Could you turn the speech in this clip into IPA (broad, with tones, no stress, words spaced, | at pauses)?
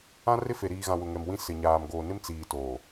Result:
ã˦rɪ˦fe˨ ɾiː˨ɣã˨wʊ˨ ŋɛ˨mwĩ˦ sɪ˨ɲaː˨m ɡoː˨nɪ˦m t͡siː˨ toː˨